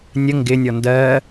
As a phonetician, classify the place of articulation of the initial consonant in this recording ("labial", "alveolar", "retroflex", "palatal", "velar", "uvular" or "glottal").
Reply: alveolar